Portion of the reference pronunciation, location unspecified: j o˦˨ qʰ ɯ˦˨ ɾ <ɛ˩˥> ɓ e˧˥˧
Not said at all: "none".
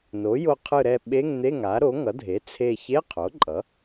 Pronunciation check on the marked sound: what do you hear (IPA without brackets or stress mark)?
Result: ɛ˦˨